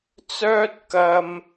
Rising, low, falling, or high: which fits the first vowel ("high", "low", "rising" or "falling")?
high